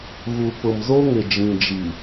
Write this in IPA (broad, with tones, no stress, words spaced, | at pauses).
ɣu˨ pʊ˨mzo˦ŋɪ˨ d͡ʒĩ˨d͡ʒi˨